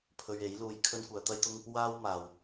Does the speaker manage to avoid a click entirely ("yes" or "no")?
yes